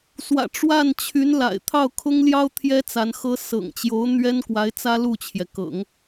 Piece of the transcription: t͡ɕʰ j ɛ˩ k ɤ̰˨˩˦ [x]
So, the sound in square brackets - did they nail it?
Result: no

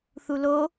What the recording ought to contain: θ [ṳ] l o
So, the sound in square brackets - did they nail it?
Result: no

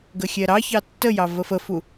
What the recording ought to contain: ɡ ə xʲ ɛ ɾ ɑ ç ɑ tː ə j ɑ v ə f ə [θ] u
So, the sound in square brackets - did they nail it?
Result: no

